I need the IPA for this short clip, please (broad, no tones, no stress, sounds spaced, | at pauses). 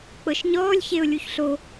k͡p ɤ ʃ ɲ ɔː lʲ ç e ʊ̯ lʲ u ç ɬ o